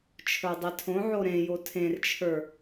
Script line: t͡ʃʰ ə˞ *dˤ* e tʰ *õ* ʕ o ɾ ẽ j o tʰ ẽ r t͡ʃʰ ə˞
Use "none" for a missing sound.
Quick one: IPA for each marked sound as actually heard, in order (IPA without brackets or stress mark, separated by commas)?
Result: dˤ, õ